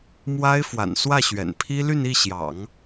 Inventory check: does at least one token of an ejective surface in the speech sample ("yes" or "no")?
no